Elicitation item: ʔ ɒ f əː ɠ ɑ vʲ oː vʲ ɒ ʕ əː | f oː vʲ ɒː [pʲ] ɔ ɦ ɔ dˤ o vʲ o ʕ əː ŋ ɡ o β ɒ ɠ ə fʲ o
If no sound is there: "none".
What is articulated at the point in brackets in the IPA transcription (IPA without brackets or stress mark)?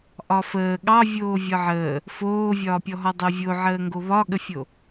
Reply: pʲ